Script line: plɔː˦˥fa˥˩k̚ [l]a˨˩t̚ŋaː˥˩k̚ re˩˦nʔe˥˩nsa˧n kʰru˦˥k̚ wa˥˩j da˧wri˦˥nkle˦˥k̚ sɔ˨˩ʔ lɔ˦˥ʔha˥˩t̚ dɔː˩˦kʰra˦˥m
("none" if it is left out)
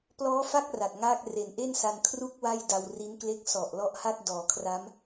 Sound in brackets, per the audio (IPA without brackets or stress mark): r